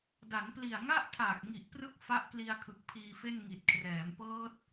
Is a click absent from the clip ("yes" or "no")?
yes